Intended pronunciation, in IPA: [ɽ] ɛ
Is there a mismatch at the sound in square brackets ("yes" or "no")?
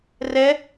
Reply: yes